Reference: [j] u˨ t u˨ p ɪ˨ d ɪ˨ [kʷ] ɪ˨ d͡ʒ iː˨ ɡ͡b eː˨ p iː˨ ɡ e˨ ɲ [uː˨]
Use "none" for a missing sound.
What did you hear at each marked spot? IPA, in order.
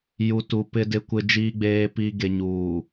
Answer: j, kʷ, uː˨

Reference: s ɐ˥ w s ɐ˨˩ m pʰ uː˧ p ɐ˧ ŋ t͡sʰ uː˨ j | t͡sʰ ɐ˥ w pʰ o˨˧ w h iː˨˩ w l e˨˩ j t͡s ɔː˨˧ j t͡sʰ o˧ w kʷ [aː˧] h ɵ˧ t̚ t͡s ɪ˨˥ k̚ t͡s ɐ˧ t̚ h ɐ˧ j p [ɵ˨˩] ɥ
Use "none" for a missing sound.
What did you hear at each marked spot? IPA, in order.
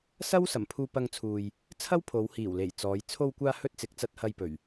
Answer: aː˧, ɵ˨˩

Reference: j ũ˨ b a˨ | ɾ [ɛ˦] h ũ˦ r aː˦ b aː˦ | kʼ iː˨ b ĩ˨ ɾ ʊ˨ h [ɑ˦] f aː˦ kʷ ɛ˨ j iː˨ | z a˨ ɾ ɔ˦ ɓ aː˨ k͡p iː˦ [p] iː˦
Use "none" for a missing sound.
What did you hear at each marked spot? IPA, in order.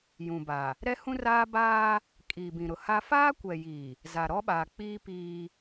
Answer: ɛ˦, a˦, p

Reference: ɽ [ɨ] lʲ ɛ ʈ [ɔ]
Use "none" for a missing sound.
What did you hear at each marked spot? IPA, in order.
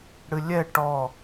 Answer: ɨ, ɔ

